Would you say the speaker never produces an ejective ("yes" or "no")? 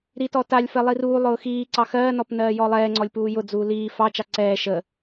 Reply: yes